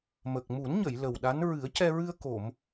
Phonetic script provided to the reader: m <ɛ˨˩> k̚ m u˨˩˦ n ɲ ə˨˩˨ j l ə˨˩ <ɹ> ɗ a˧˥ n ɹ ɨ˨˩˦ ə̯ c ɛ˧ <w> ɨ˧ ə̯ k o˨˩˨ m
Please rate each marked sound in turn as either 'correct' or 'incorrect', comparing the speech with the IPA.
incorrect, incorrect, incorrect

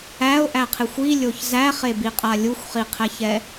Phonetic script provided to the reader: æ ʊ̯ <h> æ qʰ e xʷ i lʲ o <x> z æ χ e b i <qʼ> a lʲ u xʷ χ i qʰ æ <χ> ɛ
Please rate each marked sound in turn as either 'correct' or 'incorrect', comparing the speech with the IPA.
incorrect, incorrect, correct, incorrect

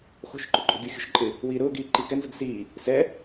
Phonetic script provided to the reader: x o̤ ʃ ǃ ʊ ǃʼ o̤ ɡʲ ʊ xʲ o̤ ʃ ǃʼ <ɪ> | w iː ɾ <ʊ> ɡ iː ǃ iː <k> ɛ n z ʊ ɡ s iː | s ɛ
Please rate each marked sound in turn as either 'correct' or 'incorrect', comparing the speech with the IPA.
correct, incorrect, correct

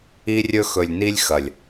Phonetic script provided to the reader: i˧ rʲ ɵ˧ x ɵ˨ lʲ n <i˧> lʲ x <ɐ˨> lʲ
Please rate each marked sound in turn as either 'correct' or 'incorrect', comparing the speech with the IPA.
correct, correct

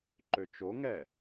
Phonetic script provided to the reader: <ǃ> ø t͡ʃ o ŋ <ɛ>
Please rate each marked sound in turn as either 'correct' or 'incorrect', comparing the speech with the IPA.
correct, correct

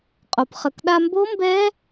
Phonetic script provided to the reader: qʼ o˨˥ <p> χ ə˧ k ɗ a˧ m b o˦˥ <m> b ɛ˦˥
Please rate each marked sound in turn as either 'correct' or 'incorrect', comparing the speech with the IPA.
correct, correct

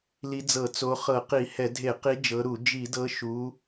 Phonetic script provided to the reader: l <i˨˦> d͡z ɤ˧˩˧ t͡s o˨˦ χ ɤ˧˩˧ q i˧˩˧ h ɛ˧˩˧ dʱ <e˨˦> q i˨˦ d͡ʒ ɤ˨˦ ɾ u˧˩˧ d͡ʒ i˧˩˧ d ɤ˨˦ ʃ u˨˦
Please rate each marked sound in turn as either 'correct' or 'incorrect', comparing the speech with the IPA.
correct, incorrect

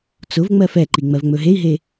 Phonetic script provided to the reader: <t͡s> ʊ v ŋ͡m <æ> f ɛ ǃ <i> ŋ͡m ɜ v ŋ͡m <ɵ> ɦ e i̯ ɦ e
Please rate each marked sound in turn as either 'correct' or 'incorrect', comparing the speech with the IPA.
correct, incorrect, correct, correct

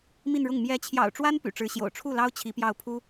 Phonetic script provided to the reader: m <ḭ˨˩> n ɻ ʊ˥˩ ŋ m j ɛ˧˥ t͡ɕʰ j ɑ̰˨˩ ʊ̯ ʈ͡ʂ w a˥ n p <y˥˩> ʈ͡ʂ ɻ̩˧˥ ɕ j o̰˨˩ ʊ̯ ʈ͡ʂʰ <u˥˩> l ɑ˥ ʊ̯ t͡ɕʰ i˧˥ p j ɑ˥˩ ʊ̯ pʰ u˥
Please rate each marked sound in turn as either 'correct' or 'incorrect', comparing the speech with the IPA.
incorrect, incorrect, correct

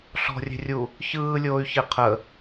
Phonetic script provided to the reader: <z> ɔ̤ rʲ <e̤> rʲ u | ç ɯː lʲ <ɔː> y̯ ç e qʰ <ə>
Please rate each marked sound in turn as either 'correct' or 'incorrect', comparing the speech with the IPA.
incorrect, correct, incorrect, correct

